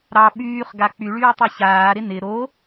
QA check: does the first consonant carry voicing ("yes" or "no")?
yes